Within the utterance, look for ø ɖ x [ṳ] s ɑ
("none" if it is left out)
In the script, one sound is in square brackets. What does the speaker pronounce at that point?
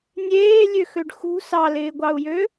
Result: ṳ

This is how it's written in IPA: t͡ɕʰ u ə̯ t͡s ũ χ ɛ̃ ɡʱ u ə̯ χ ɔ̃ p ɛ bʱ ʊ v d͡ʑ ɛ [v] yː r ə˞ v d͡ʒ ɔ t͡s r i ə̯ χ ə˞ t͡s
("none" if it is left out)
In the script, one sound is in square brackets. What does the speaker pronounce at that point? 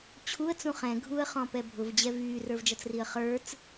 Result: v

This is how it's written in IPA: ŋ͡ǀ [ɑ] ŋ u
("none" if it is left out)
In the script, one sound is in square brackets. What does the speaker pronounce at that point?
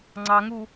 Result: ɑ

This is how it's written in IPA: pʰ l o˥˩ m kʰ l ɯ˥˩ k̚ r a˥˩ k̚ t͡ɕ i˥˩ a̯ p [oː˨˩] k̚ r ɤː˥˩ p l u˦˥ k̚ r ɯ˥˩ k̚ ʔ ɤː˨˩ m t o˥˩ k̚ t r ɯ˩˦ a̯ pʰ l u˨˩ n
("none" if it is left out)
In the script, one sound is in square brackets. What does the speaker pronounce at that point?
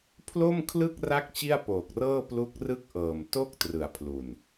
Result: oː˨˩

